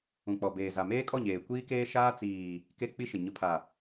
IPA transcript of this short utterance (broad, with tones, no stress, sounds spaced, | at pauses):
ũ˨ k͡p ɔ˨ b eː˨ z a˨ m eː˦ kʼ ɔ˦˨ ɲ eː˨ kʷ iː˦ k eː˦ ʃ aː˦ t͡s iː˨ | k e˦ k͡p i˦ ʃ ɪ˨ ɲ ʊ˨ pʰ a˨